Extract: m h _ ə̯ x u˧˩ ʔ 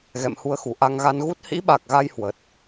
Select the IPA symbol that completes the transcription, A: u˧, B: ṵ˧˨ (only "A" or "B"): A